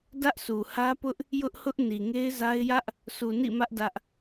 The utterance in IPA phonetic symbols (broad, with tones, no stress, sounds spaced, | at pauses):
d ä˦ ʔ s u˨ h ä˦ p ʊ˦ ʔ | j ʊ˦ ʔ h ʊ˦ ʔ n i˨ ŋ e˦ ɪ̯ z a˦ ɪ̯ j ä˦ ʔ | sʰ u˨ n ḭ˦˨ m ä˦ ʔ d ä˦ ʔ